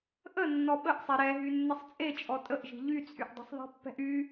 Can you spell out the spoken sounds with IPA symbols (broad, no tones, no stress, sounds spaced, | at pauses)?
ʔ ə nː ɔ ɓ ə ʔ sˤ e ɾ ɛ ɦ y nː ə sˤ t͡sʼ e t͡ʃʼ ɔ tʼ ə ʔ ʒ i̤ ʎ y t͡sʼ y ʔ dˤ i̤ sˤ ðˤ i̤ pː ɛ̤ ʔ y